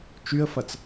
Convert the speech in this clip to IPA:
t͡ʃ y ə̯ f ɐ t͡s

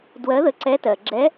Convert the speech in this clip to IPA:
d w ɜ˧˥ ð ə˧˥ ǀ ɛ˧˥ t ɜ˨ ɡ͡ǁ ɛ˧˥

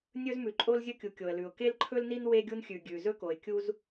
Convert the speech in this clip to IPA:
nʲ ɵ˥ z m ʉ˩ ǃʼ o˥ l zʲ ɵ˥ kʲ u˩ kʲ o˩ ə̯ l ʉ˩ ʊ̯ k e˥ l ǃʰ ɵ˥ l n i˥ n w e˥ ɡʲ u˥ n xʲ ʉ˩ ɡʲ ʉ˩ z ɵ˥ k o˩ ɪ̯ kʲ u˥ z

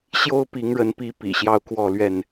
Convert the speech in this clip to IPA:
ɕ j o˦ ʊ̯ p i˨˦ ŋ ɻ ə˨˦ n p i˨˦ p ḭ˨˩ ɕ j ɑ˥˨ ʊ̯ k w ɔ˥˨ l ɥ ɛ˥˨ n

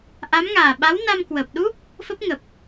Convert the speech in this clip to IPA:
ʔ a˨˦ m ŋ aː˨˩ ɓ a˨˦ w n a˧ m k w əː˨˩ p̚ ɗ u˦˥ p̚ | f ə˦˥ p̚ ŋ ə˨˩ p̚

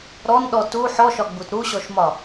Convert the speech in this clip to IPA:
ɾ ɔ n ɗ ɔ t u ħ ɔ ʃ ɒ ɡ͡b u t ɾ u ɕ ɔ ʃ m ɒ

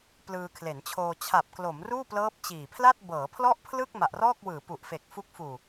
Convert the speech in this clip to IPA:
p l ɯː˧ kʰ l e˩˦ n t͡ɕʰ oː˧ t͡ɕʰ a˨˩ p̚ k l o˩˦ m r uː˥˩ p l ɤː˦˥ p̚ t͡ɕ iː˨˩ pʰ l a˥˩ t̚ b ɤː˩˦ pʰ l ɔ˥˩ ʔ pʰ l ɯ˥˩ k̚ m a˨˩ ʔ r ɔː˥˩ k̚ w ɯː˩˦ p u˨˩ ʔ f e˨˩ k̚ f u˦˥ k̚ f uː˨˩

